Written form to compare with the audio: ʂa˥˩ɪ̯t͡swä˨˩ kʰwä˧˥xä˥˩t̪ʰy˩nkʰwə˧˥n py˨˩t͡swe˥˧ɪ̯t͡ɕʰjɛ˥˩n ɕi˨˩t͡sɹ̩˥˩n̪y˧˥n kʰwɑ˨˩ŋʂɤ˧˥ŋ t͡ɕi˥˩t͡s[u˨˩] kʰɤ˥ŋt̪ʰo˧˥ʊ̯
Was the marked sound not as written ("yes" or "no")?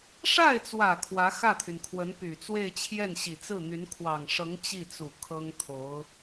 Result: no